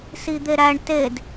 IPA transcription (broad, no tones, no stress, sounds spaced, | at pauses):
s i d̪ e ɾ æ ɳ t e d